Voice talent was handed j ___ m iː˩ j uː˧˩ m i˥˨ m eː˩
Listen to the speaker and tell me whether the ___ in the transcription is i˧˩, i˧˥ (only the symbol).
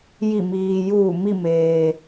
i˧˩